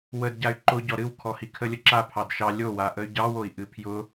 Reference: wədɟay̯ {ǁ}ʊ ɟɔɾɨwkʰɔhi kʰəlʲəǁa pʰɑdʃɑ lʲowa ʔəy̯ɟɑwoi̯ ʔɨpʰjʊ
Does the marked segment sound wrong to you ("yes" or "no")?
yes